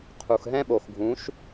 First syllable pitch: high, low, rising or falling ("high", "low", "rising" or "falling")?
low